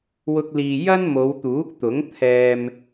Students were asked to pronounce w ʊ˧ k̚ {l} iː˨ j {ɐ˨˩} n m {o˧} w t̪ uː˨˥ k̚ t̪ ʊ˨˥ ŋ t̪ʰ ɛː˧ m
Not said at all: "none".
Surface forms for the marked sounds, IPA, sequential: l, ɐ˥, o˨˧

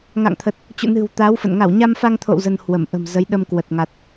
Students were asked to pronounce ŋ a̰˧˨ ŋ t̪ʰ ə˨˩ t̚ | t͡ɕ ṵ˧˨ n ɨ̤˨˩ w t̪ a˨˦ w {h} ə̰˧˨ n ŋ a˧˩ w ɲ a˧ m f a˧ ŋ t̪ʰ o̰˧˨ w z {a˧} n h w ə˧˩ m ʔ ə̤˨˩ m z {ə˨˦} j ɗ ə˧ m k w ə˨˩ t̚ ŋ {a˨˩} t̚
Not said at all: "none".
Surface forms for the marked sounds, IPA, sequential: f, ə˧, ə˨˦, a˨˩

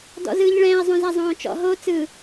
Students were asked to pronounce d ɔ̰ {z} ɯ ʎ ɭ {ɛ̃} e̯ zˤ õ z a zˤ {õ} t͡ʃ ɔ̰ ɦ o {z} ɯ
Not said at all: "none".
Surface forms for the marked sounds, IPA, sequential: z, ɛ̃, õː, t͡s

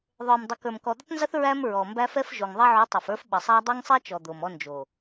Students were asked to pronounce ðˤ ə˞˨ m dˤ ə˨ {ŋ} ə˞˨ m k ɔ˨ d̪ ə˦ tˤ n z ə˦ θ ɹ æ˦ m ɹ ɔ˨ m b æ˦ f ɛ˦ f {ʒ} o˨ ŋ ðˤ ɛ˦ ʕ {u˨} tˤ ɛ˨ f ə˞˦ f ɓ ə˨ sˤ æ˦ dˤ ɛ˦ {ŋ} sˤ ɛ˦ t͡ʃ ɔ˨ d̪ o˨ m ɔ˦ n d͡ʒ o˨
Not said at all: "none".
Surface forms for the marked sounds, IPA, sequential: k, ʒ, u˨˦, ŋ

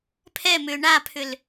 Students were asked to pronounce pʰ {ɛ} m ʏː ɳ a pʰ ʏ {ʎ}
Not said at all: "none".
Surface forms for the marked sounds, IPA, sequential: ɛ, l

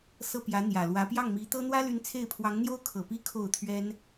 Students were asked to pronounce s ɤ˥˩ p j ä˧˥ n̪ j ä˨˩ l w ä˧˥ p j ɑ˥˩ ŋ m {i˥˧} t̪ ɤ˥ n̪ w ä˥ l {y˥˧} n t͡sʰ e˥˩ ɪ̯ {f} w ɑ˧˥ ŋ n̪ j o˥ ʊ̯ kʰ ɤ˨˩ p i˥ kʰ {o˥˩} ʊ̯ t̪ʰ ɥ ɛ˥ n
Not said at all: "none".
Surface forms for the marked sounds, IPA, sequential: i˧˥, y˧˥, pʰ, o˥˩

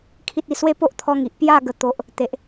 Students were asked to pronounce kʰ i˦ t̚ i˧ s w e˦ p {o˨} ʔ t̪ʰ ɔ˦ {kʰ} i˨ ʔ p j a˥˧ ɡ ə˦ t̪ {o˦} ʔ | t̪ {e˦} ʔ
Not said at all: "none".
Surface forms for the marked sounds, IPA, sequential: o˦, ŋ, o˦, e˦

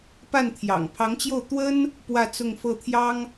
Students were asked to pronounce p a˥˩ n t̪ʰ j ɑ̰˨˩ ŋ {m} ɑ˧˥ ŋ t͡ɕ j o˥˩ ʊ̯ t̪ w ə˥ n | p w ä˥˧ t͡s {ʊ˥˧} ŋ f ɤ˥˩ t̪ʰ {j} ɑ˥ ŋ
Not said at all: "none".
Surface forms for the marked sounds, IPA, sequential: pʰ, ʊ˥˧, j

